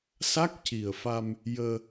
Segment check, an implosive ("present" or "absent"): absent